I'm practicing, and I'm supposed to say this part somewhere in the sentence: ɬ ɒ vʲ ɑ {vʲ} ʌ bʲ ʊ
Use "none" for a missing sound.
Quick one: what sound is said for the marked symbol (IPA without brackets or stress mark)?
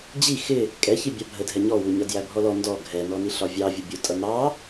vʲ